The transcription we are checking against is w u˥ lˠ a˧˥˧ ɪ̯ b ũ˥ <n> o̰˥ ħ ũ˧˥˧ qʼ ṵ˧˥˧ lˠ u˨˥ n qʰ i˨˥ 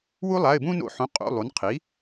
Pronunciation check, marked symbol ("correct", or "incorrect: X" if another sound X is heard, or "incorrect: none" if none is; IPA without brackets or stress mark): correct